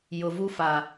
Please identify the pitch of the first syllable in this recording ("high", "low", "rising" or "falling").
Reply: low